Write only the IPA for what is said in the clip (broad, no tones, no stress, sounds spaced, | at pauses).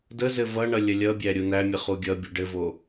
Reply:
d ə z ɘ v ʌ ɳ ʌ lʲ ə lʲ ʌ bʲ æ ɾʲ u n æ mʲ ə χ u ɡʲ ʌ bʲ u ɖ ɘ v o